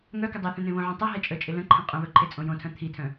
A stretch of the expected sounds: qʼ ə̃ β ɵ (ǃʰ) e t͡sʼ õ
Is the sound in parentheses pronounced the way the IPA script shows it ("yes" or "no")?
yes